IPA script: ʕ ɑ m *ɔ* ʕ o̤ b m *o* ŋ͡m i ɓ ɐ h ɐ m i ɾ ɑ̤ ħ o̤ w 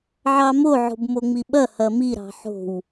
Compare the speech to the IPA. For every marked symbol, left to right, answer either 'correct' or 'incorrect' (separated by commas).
incorrect, correct